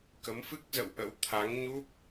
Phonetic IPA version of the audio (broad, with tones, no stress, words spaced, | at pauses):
kə˨˦mfɨ˦˥k̚zə̰˧˨w ʔə̰˧˥w t̪ʰa˨˦ŋɲu˦˥p̚